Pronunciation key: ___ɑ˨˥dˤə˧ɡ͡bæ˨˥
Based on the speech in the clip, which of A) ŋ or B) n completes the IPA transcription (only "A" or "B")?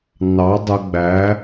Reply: B